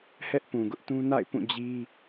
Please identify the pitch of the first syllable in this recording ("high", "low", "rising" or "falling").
high